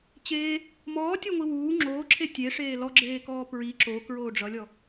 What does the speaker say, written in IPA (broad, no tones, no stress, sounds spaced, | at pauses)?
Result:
t͡ɕ eː | m ɔː tʲ o ŋʷ i w uː ŋ͡ǁ oː ǁʰ e tʲ e ʂ eː l ɔ ɡ͡ǁ eː k ɔː p ɹ i ǁ o k ɹ oː ɖ͡ʐ ʌ lʲ ɔ